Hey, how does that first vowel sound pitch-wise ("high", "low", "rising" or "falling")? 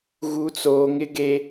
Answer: high